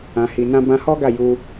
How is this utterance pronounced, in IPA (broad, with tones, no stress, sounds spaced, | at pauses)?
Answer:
ã˨ h i˨ n ã˧ b ã˧ h ɔ˦ ɡ a˦˨ j u˧